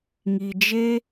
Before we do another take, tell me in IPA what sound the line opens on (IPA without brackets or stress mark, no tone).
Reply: ŋ